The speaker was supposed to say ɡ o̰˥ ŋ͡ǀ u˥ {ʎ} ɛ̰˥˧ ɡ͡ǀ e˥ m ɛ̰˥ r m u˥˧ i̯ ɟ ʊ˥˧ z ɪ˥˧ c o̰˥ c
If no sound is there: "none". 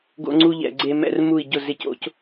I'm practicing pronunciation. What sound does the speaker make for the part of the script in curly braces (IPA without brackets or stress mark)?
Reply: ʎ